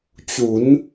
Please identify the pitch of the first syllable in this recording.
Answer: rising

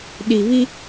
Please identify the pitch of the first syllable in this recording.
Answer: low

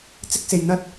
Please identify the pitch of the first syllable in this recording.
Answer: high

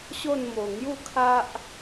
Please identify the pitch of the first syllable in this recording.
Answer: falling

